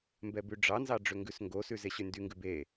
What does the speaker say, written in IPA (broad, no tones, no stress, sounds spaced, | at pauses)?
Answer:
m b ɛ b ʉ ɖ͡ʐ ɑ n z ɑ ɖ͡ʐ ø ŋ ɡ ʉ s ŋ ɡ o s ʉ z e ɕ y n d y ŋ ɡ ʉ b e